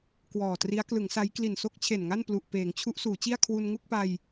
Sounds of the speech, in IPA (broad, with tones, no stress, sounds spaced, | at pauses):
k w ɔː˨˩ t r i˦˥ a̯ k l ɯ˩˦ ŋ s a˦˥ j k l i˨˩ n s o˥˩ k̚ t͡ɕʰ e˨˩ n ŋ a˥˩ n p l u˨˩ ʔ p eː˩˦ ŋ t͡ɕʰ u˦˥ ʔ s uː˩˦ t͡ɕ i˥˩ a̯ kʰ w u˧ n ŋ u˥˩ k̚ p a˧ j